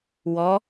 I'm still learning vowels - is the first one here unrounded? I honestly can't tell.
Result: no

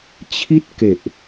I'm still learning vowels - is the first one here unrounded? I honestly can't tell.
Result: yes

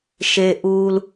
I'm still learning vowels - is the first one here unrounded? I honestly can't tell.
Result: yes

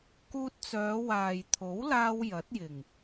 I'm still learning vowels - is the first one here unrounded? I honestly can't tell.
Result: no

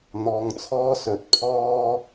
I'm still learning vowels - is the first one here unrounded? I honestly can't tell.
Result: no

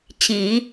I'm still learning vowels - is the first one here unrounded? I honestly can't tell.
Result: yes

